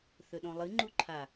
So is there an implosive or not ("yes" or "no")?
yes